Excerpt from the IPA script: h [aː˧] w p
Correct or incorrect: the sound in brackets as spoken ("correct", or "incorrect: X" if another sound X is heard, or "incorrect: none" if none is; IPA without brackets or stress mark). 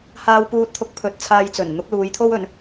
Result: correct